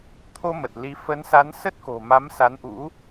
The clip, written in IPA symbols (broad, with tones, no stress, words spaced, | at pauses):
t̪ʰo˧mə˨˩t̚ li˧ fə˨˦nsa˨˦n sə˦˥t̚ko̤˨˩ma˨˦m sa˨˦nʔṵ˧˥